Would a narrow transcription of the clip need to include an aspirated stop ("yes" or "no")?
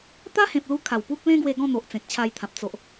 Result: yes